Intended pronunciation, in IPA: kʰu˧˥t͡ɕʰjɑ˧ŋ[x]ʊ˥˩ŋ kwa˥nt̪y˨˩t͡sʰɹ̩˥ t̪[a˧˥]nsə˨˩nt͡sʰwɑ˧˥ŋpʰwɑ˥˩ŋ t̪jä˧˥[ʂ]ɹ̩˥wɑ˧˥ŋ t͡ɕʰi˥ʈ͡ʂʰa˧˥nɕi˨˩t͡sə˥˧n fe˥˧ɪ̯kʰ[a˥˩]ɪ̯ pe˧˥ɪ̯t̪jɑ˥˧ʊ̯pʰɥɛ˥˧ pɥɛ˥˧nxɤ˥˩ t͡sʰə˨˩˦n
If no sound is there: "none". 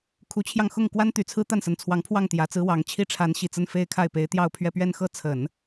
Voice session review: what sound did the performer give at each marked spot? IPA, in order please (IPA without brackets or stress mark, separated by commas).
x, a˥˩, t͡s, a˥˩